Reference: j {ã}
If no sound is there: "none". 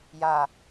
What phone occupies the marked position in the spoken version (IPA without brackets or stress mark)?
a